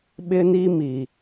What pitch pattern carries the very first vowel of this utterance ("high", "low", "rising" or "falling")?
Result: high